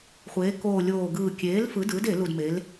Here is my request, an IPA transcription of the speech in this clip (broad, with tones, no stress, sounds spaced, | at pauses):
χʷ eː˩˧ k oː˨˩ lʲ oː˨˩ ɡ ɯː˨˩ kʲ eː˩˥ l f ɯ˩˥ d ɯː˩˥ d e˧˩˧ l u˨˩ d m e˩˧ l